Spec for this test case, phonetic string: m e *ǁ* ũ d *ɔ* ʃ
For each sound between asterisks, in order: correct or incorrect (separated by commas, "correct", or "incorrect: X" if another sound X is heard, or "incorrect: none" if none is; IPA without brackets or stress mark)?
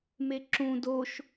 correct, incorrect: o